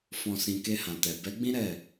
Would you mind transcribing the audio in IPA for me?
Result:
f ɔ̃˨ s ĩ˨ k e˧ h ã˨ t ɛ˨ b ɛ˨˦ ɡ͡b ĩ˦ ɾ ɛ˦˨

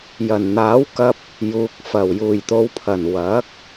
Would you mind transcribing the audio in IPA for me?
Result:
j ɐ˨˩ n n̪ aː˨˥ w k ɐ˧ p̚ | j uː˨ k̚ f ɐ˨˩ w j uː˨˩ j t̪ o˨˧ w pʰ ɐ˨˩ n w ɐ˨˥ k̚

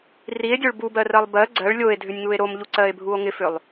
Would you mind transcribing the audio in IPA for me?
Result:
r i e̯ dʲ o ɭ b u b ɜ r ɜ lˠ b ɜ ɡ͡ǀ ɜ ɭ lʲ o e̯ dʱ ʏ nʲ ŋ u e̯ ɾ o m ʎ u ǀ ɜ e̯ bʱ u o̯ ŋ ɪ f ʏ lˠ

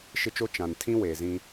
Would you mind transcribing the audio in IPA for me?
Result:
ʃ ɪ˦ t͡ʃ o˦ t͡ʃ ã˨ n tʰ ĩ˦ w eː˨ z ĩ˦

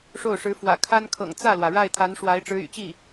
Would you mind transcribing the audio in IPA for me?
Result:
ʂ o˥˩ ʊ̯ ʂ ɻ̩˧˥ f w ä̰˨˩ kʰ a˥ n kʰ ɤ̰˨˩ ŋ t͡s ä˥˩ l w ä˩ ɻ a˥˩ ɪ̯ t̪ʰ a˧˥ n ʂ w a˧˥ ɪ̯ ʈ͡ʂ ɻ̩˧˥ y̰˨˩ t͡ɕ i˥˩

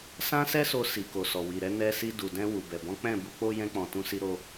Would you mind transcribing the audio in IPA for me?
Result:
s ã˦ s ɛ˦ s o˧ s i˨ k o˨ s ɔ˨ w i˨ ɾ ɛ˧ n ɛ˧ s i˧ d u˨ d ɛ̃˧ w u˨ b ɛ˨ b ɔ̃˨˦ k͡p ɛ̃˦˨ b u˧ k͡p o˦ j ɛ̃˧ k͡p ɔ̃˨ t ũ˧ s i˧ ɾ o˧

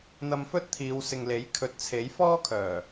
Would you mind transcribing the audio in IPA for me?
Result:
n̪ ɐ˧ m f ɵ˥ t̚ t̪ʰ iː˨˧ w s ɪ˨ ŋ l e˨˥ j kʰ ɵ˨ t̚ t͡sʰ e˨˥ j f ɔː˥ kʰ œː˨˩

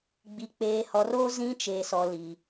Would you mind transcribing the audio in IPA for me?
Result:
ɡ͡b i˨ k͡p eː˨ h ɔ˨ r oː˦ z ĩ˦ t͡ʃ eː˨ s ɔ˨ l i˨

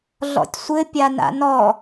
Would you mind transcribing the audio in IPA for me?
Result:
ɮ ɔ̰ tʲ sʷ ɘ pʲ a n a̰ n ɔ

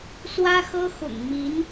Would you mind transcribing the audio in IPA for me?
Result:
s w ä˥ x ɤ˥ x ʊ̰˨˩ ŋ m i˧˥ n

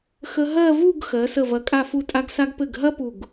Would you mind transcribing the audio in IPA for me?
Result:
x ə˧ ɦ ɜ˥˧ v u˥˧ ɡ x ɜ˩˧ s ə˧˩ v ɐ˩˧ kʼ a˧˩ f u˧˩ tʼ a˧ ɡ s a˧ ɡ p ɘ˧˩ ɡ ɦ ɐ˥ p u˧˩ ɡ

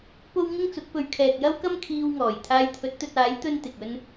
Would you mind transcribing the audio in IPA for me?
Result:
p o˥ w ŋ ɪ˥ ŋ t͡s ʊ˨˥ k̚ p ɵ˧ ɥ kʰ ɛː˨ k̚ j ɐ˥ w k ɐ˥ m kʰ iː˧ w ŋ ɔː˨˩ j t̪ʰ aː˧ j t̪ʰ ɵ˨˥ t̚ t̪ ɵ˧ t̚ aː˨˥ j t̪ ɵ˥ n t̪ ɪ˨ k̚ ɵ˥ n

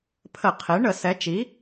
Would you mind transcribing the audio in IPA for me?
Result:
pʰ ə˧˩˧ qʰ e˩˥ ɳ ə˧˩˧ s ɛ˩˥ t͡ʃ i˩˥

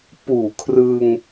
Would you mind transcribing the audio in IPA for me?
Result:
p uː˨˩ kʰ r ɯ˧ ŋ

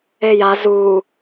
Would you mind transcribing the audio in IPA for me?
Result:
e j a z u

